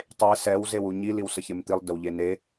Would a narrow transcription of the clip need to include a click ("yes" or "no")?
no